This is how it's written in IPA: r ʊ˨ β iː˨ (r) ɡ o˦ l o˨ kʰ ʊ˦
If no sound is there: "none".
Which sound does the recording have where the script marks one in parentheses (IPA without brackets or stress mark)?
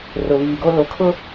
none